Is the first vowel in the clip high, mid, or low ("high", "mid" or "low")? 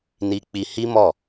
high